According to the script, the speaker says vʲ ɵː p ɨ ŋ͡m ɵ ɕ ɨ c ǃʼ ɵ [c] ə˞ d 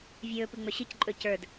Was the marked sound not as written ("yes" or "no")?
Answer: no